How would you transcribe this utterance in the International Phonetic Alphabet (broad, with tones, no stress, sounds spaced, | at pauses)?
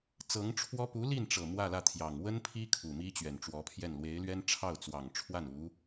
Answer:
t͡s ɤ˧˥ ŋ ʈ͡ʂʰ w ɔ˥ p u˧˥ l i˥˩ n ʈ͡ʂ ɤ˨˩ m w ä˥˧ l ä˥˩ t̪ʰ j ɑ˨˩ ŋ w ə˥ n pʰ i˥ kʰ u˨˩ m i˥ t͡ɕ ɥ ɛ˨˩ n ʈ͡ʂ w ɔ˧˥ pʰ j ɛ˥˩ n l w e˧˥ ɪ̯ l ɥ ɛ˥ n ʈ͡ʂʰ ɑ˥˩ ʊ̯ t͡s w ɑ˨˩ ŋ ʈ͡ʂʰ w a˥˩ n u˧˥